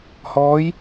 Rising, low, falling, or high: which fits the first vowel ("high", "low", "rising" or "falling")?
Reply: rising